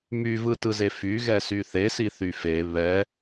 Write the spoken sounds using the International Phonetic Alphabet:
m y v ɯ t ɯ z e f y ɣ ɛ s y θ e s i θ y f e β ɛ

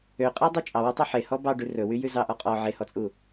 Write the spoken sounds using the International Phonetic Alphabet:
ø qʼ æ dˤ ø t͡ʃʼ ɑ w ɛ tˤ ø ħ e h ɔ b ɑ ɖ ʉ r ɵ w y j ʉ z ɑ ʔ ɔ qʼ ɔ ʕ e h ɔ t͡sʼ u

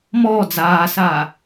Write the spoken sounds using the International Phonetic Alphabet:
m ɔː d͡z aː s aː

